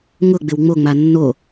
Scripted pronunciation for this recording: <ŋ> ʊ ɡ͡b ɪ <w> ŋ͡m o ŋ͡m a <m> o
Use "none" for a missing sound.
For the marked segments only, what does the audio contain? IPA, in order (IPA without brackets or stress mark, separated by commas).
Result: ŋ, w, nː